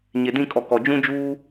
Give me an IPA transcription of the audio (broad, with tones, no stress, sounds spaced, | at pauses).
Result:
ɲ e˨ d ĩ˦˨ kʼ ɔ˨ k ɔ˨ d͡ʒ ũ˦ d͡ʒ uː˦